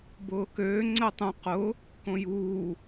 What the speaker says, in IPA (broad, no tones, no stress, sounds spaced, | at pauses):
b ʊː k øː ŋ͡ǀ ɛ tˤ ũ q ʊ | k õ j uː